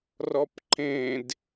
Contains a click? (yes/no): yes